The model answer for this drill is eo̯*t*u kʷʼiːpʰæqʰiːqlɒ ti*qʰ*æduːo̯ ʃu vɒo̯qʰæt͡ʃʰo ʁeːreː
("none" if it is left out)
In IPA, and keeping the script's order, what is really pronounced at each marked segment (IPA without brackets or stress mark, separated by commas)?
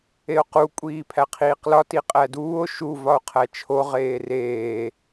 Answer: q, qʼ